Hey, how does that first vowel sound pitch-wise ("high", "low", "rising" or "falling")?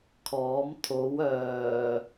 rising